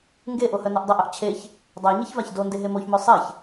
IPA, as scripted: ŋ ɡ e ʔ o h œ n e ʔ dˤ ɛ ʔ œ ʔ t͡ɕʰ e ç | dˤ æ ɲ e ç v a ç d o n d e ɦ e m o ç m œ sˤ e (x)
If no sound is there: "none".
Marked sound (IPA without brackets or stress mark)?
ç